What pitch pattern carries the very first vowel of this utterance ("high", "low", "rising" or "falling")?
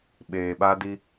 low